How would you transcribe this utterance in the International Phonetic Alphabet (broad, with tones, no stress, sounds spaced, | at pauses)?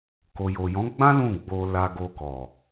k o˨ j o˨ j ɔ̃˨˦ ɡ͡b ã˦ l ũ˦˨ ɡ͡b o˧ l a˧ ɡ o˧ k ɔ˨